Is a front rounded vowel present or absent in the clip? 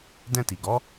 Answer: absent